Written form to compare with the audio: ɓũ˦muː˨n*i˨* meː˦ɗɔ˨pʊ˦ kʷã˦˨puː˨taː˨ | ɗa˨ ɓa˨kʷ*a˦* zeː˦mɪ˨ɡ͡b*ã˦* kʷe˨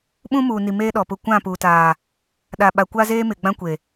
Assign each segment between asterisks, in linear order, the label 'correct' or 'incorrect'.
correct, correct, correct

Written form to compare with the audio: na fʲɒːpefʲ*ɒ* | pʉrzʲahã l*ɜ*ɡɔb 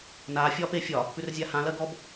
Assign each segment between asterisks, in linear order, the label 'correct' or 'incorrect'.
correct, correct

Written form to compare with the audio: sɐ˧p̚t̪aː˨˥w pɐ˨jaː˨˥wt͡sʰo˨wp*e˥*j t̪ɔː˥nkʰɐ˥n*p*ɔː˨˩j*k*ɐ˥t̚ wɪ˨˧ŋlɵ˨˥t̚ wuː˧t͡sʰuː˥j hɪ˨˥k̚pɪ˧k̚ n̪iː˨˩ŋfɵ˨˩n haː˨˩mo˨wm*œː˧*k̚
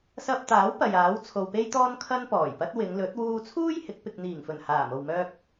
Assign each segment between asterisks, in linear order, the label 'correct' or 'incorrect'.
correct, correct, incorrect: p, correct

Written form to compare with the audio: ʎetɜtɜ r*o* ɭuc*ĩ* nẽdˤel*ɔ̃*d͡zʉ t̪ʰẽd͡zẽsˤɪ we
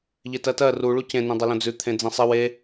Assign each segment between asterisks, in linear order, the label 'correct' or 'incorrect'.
incorrect: u, incorrect: ẽ, incorrect: õ

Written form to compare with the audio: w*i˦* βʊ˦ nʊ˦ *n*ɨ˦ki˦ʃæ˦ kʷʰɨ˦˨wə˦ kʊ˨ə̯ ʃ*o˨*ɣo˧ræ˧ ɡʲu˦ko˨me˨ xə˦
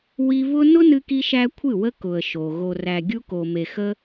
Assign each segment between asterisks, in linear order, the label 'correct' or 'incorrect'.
correct, correct, correct

